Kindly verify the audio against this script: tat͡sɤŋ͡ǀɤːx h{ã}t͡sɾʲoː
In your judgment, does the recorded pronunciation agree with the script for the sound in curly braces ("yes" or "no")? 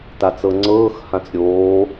yes